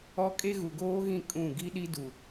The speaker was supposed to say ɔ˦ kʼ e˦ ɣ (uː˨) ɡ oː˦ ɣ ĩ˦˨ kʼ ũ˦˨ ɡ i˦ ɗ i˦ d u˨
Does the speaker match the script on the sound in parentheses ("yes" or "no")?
no